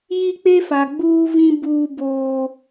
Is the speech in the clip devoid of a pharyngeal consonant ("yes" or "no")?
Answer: yes